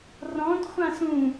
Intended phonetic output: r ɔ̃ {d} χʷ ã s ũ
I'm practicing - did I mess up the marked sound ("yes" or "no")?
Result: no